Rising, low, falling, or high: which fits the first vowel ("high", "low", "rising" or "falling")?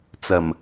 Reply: low